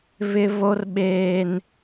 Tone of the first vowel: high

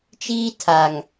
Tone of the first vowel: high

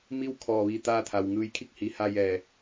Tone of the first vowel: falling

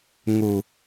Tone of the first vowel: low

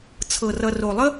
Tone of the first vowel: low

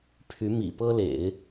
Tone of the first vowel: rising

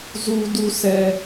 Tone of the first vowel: high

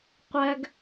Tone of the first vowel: high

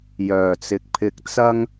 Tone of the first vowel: low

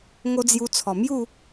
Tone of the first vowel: high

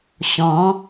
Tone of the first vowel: rising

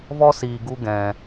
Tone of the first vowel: high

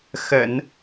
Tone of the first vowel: low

